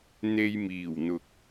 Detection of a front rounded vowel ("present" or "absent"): absent